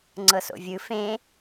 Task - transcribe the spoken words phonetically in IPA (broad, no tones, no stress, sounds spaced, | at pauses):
ŋ͡ǀ ɤ s o̰ vʲ ɯ f ẽ